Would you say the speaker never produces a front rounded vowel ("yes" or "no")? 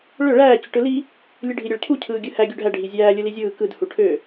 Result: no